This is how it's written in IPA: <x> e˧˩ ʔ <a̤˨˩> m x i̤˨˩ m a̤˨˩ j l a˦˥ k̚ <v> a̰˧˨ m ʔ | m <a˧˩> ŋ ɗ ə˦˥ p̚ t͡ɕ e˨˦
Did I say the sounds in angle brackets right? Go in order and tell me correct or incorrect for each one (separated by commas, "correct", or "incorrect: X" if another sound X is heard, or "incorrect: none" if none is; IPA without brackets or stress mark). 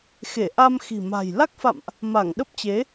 correct, incorrect: a˧, incorrect: f, correct